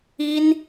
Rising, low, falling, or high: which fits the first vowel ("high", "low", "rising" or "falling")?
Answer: high